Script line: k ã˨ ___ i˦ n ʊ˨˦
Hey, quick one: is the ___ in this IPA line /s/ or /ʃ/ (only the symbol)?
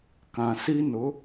s